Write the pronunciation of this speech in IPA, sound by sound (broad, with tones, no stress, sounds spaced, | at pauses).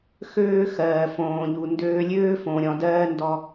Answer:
x øː˦ x ɜː˨ f õː˨ ʎ u˨ n d øː˧ lʲ øː˦ f õ˨ ɾʲ ɔ̃˨ d ɜː˦ n d ɔ˧